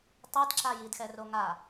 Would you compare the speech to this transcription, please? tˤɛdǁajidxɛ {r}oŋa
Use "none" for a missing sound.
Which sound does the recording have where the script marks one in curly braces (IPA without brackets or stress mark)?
r